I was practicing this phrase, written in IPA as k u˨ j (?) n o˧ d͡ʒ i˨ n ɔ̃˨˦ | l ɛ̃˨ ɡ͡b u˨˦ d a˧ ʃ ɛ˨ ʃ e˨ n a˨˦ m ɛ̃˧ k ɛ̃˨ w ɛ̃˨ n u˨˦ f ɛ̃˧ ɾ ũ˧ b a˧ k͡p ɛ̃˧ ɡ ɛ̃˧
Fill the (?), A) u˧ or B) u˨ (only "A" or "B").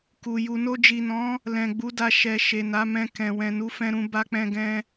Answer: B